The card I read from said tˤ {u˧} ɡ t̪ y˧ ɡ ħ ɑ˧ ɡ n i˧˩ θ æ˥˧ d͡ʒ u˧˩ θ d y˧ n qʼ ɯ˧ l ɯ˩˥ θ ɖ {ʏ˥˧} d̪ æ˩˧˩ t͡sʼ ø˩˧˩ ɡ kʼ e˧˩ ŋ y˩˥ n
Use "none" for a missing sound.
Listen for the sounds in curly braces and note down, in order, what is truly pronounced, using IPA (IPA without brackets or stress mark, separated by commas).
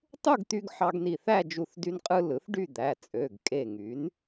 u˥˧, y˥˧